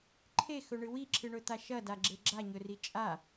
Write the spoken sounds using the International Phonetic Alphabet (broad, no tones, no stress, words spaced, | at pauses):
ǃʰexɵɳɨ wiǁʰɨɳɵt̪a ʃɐdaɡ͡ǁe ɡ͡ǁaɲɵri t͡ʃʼa